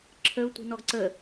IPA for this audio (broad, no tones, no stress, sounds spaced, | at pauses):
ǁʰ ə ʊ̯ tʷ i̤ n ɔ ɡ ǀ ə